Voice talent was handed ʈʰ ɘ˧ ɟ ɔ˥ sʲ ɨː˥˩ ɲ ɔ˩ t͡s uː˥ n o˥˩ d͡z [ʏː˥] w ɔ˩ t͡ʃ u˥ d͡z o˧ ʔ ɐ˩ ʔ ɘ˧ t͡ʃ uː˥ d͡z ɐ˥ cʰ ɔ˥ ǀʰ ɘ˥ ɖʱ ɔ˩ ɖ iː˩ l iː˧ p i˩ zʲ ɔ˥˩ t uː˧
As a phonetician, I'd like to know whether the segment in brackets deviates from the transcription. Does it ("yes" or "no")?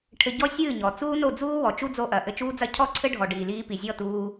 yes